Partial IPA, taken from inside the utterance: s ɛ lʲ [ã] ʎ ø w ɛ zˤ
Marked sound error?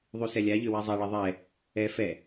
yes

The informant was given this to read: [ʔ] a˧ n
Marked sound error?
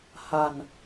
yes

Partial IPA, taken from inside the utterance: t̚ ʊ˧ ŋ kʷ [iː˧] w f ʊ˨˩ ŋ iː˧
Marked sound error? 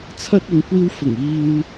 no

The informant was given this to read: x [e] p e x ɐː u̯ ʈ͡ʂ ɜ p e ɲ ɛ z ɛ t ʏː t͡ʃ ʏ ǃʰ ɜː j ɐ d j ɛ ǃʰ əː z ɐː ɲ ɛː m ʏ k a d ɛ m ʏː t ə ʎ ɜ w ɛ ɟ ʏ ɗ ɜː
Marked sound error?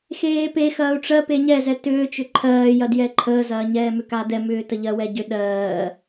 yes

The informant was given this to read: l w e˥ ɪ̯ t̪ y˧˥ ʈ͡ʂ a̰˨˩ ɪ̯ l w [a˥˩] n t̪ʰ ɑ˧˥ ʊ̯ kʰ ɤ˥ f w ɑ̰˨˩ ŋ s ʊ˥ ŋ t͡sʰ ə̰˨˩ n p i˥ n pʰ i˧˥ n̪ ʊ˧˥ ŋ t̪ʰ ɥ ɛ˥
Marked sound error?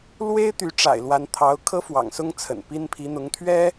yes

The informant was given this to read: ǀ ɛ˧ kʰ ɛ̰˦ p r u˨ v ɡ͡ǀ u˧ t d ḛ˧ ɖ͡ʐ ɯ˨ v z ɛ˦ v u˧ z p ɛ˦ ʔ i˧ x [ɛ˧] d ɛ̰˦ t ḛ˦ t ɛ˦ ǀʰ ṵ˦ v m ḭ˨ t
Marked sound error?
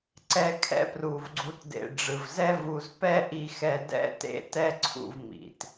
no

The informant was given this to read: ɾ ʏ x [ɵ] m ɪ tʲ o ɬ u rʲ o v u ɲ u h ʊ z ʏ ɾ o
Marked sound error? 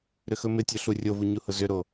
no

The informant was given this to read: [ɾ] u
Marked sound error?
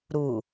no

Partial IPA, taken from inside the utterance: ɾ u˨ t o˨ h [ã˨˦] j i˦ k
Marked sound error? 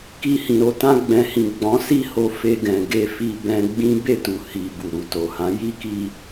no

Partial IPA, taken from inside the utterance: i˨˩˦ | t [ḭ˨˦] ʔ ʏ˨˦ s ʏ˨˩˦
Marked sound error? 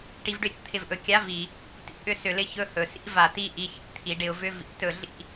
yes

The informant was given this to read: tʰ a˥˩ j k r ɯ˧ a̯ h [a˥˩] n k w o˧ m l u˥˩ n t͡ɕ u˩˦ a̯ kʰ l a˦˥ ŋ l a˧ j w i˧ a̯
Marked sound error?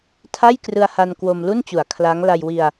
yes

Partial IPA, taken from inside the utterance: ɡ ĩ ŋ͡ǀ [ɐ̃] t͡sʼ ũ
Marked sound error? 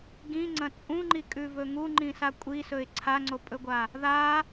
no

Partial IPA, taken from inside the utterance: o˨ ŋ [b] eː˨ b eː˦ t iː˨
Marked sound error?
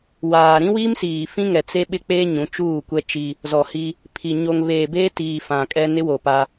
yes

